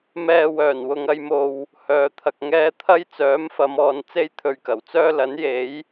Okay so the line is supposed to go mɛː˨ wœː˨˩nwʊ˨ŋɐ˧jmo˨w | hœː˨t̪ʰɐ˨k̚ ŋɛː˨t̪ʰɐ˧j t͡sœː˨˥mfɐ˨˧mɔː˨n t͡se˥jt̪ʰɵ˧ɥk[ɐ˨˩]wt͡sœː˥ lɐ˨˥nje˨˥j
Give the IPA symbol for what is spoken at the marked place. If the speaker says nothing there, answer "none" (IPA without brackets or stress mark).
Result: ɐ˨˩